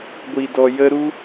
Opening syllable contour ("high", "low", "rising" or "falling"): low